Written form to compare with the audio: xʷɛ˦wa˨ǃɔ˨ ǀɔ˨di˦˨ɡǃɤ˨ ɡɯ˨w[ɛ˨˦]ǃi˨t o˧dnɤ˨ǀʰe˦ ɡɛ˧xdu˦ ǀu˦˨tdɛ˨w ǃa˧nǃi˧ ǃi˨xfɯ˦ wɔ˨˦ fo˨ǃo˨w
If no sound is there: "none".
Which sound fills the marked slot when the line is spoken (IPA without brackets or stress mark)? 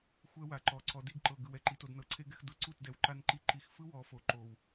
ɛ˨